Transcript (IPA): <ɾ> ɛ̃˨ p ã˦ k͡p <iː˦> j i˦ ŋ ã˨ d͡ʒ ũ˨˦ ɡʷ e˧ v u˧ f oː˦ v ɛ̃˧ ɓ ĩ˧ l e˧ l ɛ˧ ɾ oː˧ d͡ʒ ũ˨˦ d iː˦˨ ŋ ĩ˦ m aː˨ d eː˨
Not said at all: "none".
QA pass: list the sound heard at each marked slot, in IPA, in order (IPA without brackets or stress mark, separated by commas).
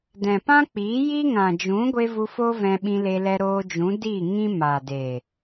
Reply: d, iː˨˦